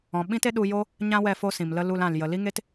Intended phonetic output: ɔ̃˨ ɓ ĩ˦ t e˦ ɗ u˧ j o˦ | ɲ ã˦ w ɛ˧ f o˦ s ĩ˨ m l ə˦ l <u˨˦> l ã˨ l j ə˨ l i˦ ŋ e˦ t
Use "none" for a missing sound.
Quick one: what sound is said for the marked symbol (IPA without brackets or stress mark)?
u˧